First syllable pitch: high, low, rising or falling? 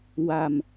low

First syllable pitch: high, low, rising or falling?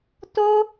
high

